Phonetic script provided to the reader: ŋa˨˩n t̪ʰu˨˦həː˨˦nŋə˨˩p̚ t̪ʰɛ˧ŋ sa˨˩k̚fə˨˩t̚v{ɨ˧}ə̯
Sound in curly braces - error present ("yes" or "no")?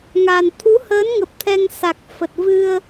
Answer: no